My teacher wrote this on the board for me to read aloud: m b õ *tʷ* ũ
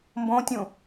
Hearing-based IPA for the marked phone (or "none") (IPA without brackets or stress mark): tʲ